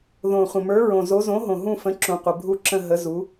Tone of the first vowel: low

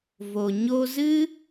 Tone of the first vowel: low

